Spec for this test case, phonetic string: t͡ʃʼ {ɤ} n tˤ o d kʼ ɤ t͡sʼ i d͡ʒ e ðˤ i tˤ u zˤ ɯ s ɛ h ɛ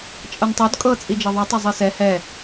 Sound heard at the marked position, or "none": ɤ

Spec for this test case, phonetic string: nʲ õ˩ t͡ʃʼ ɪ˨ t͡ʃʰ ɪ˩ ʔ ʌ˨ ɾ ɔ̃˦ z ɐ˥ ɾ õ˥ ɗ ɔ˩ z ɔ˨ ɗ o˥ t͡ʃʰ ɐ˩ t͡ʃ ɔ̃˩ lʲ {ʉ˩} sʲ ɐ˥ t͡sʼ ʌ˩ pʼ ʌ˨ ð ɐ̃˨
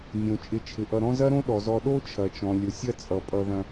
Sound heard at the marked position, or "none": ʊ˩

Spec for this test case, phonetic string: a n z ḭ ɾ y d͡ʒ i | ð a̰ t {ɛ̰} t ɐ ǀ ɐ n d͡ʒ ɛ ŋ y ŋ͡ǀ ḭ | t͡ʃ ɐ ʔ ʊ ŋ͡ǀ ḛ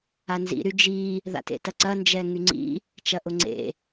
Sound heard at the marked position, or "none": ḛ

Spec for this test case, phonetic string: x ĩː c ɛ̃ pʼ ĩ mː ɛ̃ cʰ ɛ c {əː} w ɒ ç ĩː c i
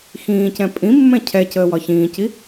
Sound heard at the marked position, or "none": əː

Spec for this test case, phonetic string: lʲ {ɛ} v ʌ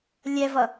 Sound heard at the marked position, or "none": ɛ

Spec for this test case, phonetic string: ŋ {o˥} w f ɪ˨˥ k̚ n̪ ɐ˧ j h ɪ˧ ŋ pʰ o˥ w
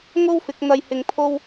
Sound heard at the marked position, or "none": o˥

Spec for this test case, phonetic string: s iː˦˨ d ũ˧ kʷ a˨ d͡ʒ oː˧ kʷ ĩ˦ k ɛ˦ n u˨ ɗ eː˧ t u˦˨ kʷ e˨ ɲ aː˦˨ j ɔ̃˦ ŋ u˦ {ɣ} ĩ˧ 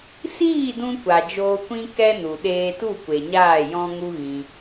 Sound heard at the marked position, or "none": ɣ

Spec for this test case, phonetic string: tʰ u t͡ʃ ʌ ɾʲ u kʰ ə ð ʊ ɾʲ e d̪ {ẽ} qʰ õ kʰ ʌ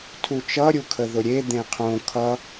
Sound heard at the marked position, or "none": ẽ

